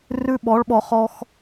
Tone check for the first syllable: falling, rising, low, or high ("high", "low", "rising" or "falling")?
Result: high